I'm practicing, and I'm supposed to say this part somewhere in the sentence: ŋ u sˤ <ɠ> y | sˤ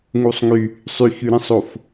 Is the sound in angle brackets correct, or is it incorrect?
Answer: incorrect